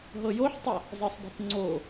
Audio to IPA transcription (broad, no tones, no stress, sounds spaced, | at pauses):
ɦ ɤ j o ħ tˤ ə | zˤ ɤ sˤ dˤ ṳ t ŋ͡ǀ o